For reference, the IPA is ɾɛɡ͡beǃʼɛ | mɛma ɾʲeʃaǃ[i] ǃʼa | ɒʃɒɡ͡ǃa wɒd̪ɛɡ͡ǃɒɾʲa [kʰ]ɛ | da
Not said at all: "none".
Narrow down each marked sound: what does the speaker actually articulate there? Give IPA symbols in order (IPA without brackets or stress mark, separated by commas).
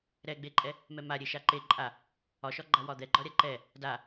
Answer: e, ǃ